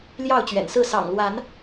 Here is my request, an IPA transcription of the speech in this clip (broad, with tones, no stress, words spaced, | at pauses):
ljɑ˥˨ʊ̯t͡ɕɥɛ̰˨˩nsɹ̩˥˨ sɑ̰˨˩ŋlwa˨˦n